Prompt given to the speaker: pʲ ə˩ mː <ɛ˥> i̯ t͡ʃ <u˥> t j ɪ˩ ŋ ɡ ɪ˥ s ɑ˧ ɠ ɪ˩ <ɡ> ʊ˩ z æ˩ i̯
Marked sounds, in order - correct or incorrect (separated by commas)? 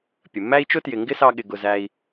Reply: incorrect, incorrect, correct